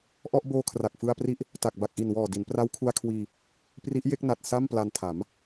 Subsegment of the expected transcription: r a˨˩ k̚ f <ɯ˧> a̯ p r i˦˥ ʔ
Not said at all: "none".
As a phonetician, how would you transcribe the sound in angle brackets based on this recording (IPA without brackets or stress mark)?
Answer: ɯ˧